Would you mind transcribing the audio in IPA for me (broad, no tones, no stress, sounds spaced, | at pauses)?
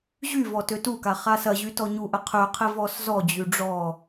ʑ y v ɔ t ø t u k a χ a s ɐ ʑ y t ɔ ɲ u ʔ ə qʰ ø qʰ ɪ v ɔ s z ɔ d͡ʑ y ɖ͡ʐ ɔ